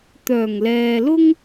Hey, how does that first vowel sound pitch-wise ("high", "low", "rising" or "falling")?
low